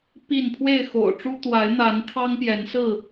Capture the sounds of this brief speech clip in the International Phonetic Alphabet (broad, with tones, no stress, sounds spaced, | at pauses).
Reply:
p i˥˨ n pʰ w e˥˨ ɪ̯ x o̰˨˩ ʊ̯ ʈ͡ʂ u˦ t̪ w a˨˦ ɪ̯ n̪ a˨˦ n t̪ʰ ɑ˦ ŋ p j ɛ˨˦ n s ɹ̩˥˨